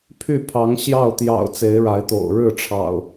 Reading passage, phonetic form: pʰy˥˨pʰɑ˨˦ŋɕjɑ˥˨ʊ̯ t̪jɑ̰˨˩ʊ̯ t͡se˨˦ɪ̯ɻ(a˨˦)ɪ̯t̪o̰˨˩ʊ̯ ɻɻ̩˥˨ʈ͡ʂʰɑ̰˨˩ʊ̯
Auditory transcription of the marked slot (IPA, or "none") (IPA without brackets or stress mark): a˨˦